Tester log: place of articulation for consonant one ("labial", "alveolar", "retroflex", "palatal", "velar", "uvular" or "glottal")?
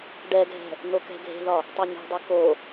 retroflex